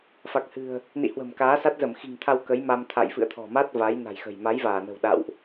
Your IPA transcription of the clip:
f a˨˩ k̚ h ɨ̤˨˩ ə̯ | n ḭ˧˨ h w ə̤˨˩ m k aː˨˦ s a˦˥ t̚ z ə˧˩ m x i̤˨˩ ŋ t̪ʰ a˧ w k ə˨˦ j m a˧ m t̪ʰ a̰˧˨ j f ɨ̰˧˨ ə̯ t̪ʰ ɔ̤˨˩ m a˦˥ t̚ v a˨˦ j n a̤˨˩ j x ə̤˨˩ j m a˨˦ j v aː˧˩ n ə̤˨˩ w ɗ a̰˧˨ w ʔ

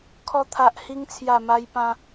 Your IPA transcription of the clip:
kʰ ɔ˧ t̪ʰ a˨ ʔ h i˧ ŋ t͡sʰ j a˨˩ m a˧ j p ã˧

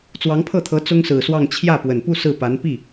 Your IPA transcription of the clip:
t͡s w ɑ˧˥ ŋ pʰ ɤ˥˩ t̪ʰ ɤ˧˥ t͡s ʊ˥ ŋ s ɹ̩˨˩ s w ɑ˥˧ ŋ t͡ɕʰ j ä˥˩ p w ə˨˩ n p u˥˧ s ɹ̩˥˩ p a˧˥ n p i˥˩

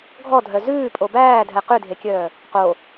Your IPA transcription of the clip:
ɡʱ ɔ dʱ œ z ʉː pʼ o b æː dʱ ɛ q ʉ dʱ e kʲ œː | q o

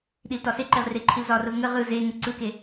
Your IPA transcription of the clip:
ɗ i l t ɒ s e ǃ e ʁ r e ǃʰ i l z ɒ r ə v ŋ ə ʁ ɯ z e ŋ ə ǀ ɯ k e

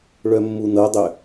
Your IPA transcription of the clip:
ɭ œ mː u n ɤ dˤ ø

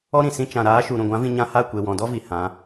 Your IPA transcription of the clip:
ɔ˦ ɾ ĩ˨ s ĩ˧ t͡ʃ ã˨ ɾ aː˨˦ ʃ u˨ ɾ ũ˨ ɡʷ ã˨˦ v ĩ˧ ɲ ã˧ h a˦˨ kʷ e˨ w ɔ̃˨ d ɔ˦ v i˨ h ã˨˦

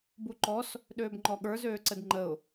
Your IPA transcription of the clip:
b u ǃ ɔ s | ɗ øː b ŋ͡ǃ ɔ ɠ ə˞ z øː ǀ ə d ŋ͡ǃ ə ʊ̯

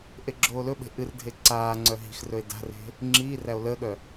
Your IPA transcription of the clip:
ʔ e ɡ͡ǁ oː l ɵ ɓ e̤ ʔ ɨ r dʱ e ǀ aː ŋ͡ǀ œ ɦ i̤ x r ɵ e̯ d a̤ r e̤ | ŋ͡ǁ iː r æ o̯ l əː ɠ œ

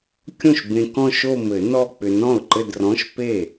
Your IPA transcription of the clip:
kʲ õ˥˩ ʃ b ẽ˧ k ɔ̃˥˧ ʃ o˥˧ m ɘ˨˩˦ n ɔ˥˧ k͡p ʏ˧ n ɔ̃˥˩ ʊ̯ ǃ ɘ˥˧ d r ɔ̃˧˥˧ ʃ p e˥˩

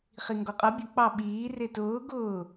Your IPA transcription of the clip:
χ i ŋ ɡ ɔ qʼ ʌ bʲ ə k͡p ɑ ɓ iː r ɪ t ʊː ɡ ʊː

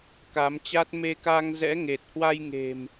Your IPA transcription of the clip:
k a˨˦ m t͡ɕ a˦˥ t̚ m e˧ k a˧ ŋ z ɛ̰˧˥ ŋ e˨˩ t̚ h w a˧ j ŋ e̤˨˩ m

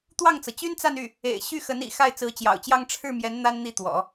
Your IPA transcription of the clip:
t̪ w ɑ˥˩ ŋ t͡s ɤ˩ t͡ɕ y˥ n t͡s a˥˧ n y˥˩ | ḛ˨˩ ɪ̯ ɕ y˥˩ x ə˧˥ n ḭ˨˩ x a˥˩ ɪ̯ t͡s ɹ̩˧˥ t͡ɕ j ɑ̰˨˩ ʊ̯ t͡ɕ j ɑ˥˧ ŋ ʈ͡ʂʰ ɻ̩˥˩ m j ɛ˧˥ n n̪ a˥ n n̪ i˥˩ t̪ w ɔ̰˨˩˦

